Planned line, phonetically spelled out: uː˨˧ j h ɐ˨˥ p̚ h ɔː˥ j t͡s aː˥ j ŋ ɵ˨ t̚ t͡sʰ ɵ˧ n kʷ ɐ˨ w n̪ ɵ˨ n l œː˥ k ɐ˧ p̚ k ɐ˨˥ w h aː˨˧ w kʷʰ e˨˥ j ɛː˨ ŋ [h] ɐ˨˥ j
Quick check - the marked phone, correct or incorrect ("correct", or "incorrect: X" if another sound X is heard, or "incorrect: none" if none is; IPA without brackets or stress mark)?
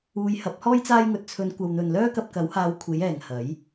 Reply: correct